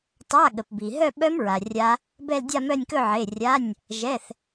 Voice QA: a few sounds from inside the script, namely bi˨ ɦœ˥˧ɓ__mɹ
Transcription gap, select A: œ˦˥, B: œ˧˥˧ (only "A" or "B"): A